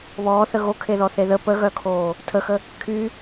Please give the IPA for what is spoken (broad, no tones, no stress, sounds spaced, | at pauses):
β ɔː θ ə ɣ o kʰ e ð ɔ θ e ð ə p ə ɣ œ kʰ oː | tʰ ə x ə | kʰ y